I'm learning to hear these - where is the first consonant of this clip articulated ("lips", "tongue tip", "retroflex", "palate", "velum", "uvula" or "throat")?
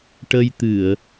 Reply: retroflex